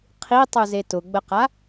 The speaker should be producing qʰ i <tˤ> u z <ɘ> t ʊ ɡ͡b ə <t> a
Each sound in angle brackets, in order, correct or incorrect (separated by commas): correct, incorrect, incorrect